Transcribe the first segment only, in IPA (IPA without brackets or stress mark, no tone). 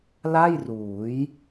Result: l